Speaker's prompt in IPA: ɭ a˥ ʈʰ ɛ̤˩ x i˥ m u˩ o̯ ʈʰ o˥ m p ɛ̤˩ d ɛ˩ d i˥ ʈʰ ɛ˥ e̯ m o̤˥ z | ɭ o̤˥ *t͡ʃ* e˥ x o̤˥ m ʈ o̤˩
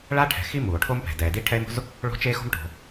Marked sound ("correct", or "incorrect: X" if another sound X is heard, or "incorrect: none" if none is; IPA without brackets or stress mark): correct